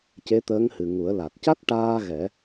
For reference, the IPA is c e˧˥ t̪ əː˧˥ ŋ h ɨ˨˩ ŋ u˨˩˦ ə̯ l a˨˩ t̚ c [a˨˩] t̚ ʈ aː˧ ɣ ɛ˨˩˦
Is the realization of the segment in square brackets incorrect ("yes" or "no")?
yes